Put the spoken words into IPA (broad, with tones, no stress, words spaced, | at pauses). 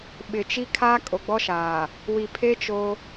ɓɪ˨t͡ʃi˦ kʰaː˦ kʼo˨ɡ͡bɔ˦ʃaː˨ | wi˨pʰe˦ t͡ʃo˦